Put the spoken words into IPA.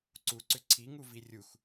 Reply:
ǀ u ǀ ʏ ǀʰ i ŋ u v i rʲ u x

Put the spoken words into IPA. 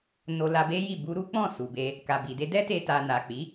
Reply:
n o˧ l a˧ b e˦ j i˦˨ b u˧ ɾ u˦ k͡p ɔ̃˦˨ s u˨ b e˧ | k a˨ b i˨ d e˧ d ɛ˦ t e˧ t a˨ n a˨ k͡p i˨˦

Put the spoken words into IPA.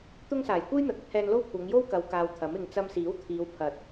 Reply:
t̪ ʊ˥ ŋ s aː˨˩ j kʷ e˥ j n̪ ɐ˨ t̚ ɐ˥ t̚ h ɛː˧ n l o˥ w kʷʰ ɐ˨˧ ŋ j o˥ w k ɐ˨˧ w k aː˧ w t̪ʰ ɐ˨˥ m ɪ˧ ŋ t͡s ɐ˧ m s iː˨˥ w t̪ʰ iː˨˧ w pʰ ɐ˨ t̚

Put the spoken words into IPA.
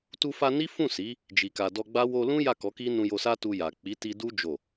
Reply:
t u˧ f a˧ n i˦ f ũ˦˨ s i˨˦ | d͡ʒ i˨ k a˨ d ɔ˧ ɡ͡b a˦ w o˧ l ũ˦ j a˦˨ k ɔ˨˦ k i˦ n ũ˧ j o˧ s a˦ t u˧ j a˨ k͡p i˨˦ t i˧ d u˦ d͡ʒ o˦˨

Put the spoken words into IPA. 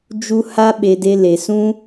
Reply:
d͡ʒ u˦ h a˦ ɓ e˧ d e˦ l e˧ s ũ˦

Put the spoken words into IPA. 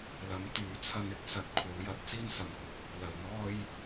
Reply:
l ɐ˨˥ m t̪ yː˨˥ t͡sʰ ɐ˧ n ɪ˨˥ k̚ s ɐ˨˥ t̚ kʷʰ ɐ˨˥ w j ɐ˨˥ t̚ t͡s iː˥ n s ɐ˨ m kʷ ɐ˨ k̚ | l ɐ˨ w n̪ ɔː˥ j

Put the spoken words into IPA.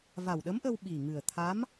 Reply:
v a˨˩ w ɗ ə˧˥ m ʔ ə˧ w ɓ i˨˩ ŋ ɨ˨˩ ə̯ t̪ʰ a˧˥ m

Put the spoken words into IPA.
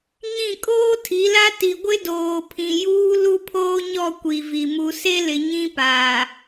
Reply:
ɲ ĩ˦˨ kʼ oː˦ tʰ i˨˦ l a˦ t i˨ ɡʷ ɪ˦ d oː˨ pʰ ĩ˨ j uː˦ l u˦ pʰ oː˦ ɲ ɔ˦˨ kʷ i˨ v i˨ m u˨ s e˦ l ɪ˨ ɲ ĩ˦ p aː˨

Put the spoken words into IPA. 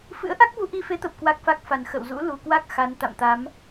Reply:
f ɨ̰˧˥ ə̯ ʔ a˦˥ k̚ v u˧ ʔ i˧ f e˨˦ t̪ ə˨˩ p̚ k w a˦˥ k̚ f a˦˥ k̚ f a˨˩ n x ə̰˧˨ w z ṵ˧˥ l u˨˩ k w a˦˥ k̚ x a˨˦ n t̪ a̰˧˨ m t̪ a˨˦ m

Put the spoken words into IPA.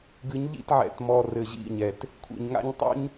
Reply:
ɡ ɨ˨˦ ɲ ʎ ḭ˦˨ t ʕ ɛ̰˨˦ t m ɔ˨ r ɘ˨ ʑ ḭ˦˨ ɲ ɛ˨ t | kʷʰ ḭ˨ ɲ ŋ a̰˦ ɲ tˤ ṵ˦ ɲ

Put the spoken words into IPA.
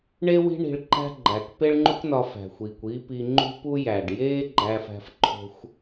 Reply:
ɳ e˥ w i̤˥ ɳ i̤˧ ɭ ǃ æ̤˥ ɡ͡ǃ æ˩ k p e˥ ɭ ŋ͡ǃ u˥ k n ɒ˧ f æ̤˩ xʷ iː˩ kʷ iː˥ p i˧ ŋ͡ǃ ṳ˥ p u˥ j æ˩ ɖ j eː˥ ɡ͡ǃ æ˧ f æ̤˧ f ǃʰ o̤˧ xʷ

